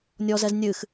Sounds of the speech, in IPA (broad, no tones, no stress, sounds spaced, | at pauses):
nʲ ɔ z ɛ z nʲ ɨ x